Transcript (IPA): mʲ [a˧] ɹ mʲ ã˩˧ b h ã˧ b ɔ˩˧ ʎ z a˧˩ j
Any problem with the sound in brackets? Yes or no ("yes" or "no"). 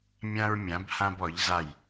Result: yes